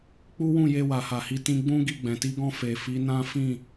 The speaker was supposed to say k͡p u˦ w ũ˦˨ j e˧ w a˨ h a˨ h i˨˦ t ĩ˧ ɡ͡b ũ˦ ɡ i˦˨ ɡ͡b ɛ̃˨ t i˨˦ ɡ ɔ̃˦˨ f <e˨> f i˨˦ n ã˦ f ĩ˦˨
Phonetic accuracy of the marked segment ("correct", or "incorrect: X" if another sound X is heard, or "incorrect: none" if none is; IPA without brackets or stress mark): correct